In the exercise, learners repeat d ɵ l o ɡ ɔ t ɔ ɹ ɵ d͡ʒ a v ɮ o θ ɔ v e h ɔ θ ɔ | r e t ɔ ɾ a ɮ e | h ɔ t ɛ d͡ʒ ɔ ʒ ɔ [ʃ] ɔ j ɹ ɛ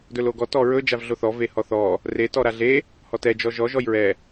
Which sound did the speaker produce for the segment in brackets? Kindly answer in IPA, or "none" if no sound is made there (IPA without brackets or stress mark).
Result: ʒ